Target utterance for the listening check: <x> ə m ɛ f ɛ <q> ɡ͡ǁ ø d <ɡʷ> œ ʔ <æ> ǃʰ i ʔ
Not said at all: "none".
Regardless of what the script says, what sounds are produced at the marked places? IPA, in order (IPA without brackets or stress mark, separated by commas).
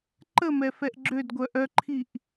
ǃ, ʔ, ɡʷ, œ